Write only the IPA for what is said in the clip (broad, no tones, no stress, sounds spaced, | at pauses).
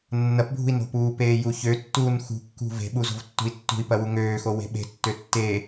nː ɐ p bʱ ṳ i̯ n o̤ p uː p eː j u ç ø tː uː n x ṳ kː ṳ v e̤ ɓ u z o̤ v tː ṳ i̯ tː ṳ i̯ p ɐ w u ŋ øː x o w e̤ ɓ e̤ tː ø tː eː